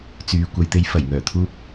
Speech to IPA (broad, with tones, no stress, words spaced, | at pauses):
t͡syː˧ kʷɐ˨˧jt̪e˧j fɐ˨˩jŋœː˨˩t̪ʰuː˧p̚